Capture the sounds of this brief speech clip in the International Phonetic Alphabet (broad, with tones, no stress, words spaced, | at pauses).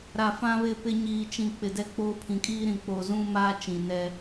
ɾa˨fã˦βɪ˦˨pɪ˦ ɲiː˨t͡ʃĩ˨ k͡pɪ˨ dɛ˦k͡poː˦ pʰĩ˨kʼiː˦ɾĩ˨ k͡poː˨zũ˦maː˦ t͡ʃĩ˨nɛ˦